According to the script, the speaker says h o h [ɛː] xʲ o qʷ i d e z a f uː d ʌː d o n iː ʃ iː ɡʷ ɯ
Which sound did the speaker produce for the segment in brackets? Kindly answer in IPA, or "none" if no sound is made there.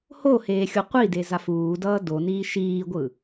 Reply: eː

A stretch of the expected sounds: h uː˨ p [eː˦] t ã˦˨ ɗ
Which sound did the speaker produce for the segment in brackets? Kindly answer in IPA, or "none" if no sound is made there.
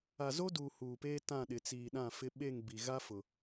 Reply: eː˦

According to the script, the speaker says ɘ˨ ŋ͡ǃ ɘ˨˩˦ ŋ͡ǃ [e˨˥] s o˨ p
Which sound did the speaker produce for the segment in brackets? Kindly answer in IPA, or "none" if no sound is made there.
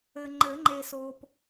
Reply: e˨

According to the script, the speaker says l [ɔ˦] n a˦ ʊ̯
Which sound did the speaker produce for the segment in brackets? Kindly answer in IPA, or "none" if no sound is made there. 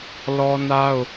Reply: ɔ˦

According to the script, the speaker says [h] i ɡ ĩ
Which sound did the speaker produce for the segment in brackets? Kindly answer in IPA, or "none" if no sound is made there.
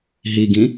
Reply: ɦ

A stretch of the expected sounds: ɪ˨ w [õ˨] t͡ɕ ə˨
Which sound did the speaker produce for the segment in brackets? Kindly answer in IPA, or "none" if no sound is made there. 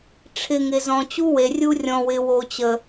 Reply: o˨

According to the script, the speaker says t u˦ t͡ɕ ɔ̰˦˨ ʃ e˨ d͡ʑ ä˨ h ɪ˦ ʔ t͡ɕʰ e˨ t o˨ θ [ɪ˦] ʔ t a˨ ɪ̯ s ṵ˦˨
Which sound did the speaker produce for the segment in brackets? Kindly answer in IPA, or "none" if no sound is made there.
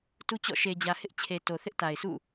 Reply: ɪ˦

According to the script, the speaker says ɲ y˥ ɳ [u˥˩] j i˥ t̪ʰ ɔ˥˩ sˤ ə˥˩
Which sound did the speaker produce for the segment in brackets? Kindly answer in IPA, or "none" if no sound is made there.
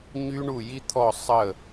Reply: u˥˩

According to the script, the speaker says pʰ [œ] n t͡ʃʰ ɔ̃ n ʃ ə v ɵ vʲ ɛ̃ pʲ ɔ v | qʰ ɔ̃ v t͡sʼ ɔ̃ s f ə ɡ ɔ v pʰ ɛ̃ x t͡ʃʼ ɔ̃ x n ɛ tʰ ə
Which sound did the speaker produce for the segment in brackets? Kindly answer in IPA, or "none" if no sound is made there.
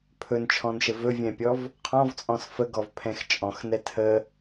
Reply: ɵ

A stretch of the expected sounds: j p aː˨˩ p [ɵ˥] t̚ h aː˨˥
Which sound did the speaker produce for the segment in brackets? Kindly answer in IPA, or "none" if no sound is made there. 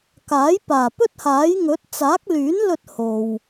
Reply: ɵ˥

